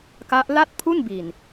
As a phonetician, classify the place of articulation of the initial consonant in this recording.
velar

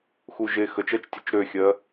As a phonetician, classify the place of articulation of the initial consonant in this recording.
velar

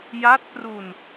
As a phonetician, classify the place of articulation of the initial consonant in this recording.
palatal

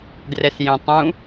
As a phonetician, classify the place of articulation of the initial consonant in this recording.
alveolar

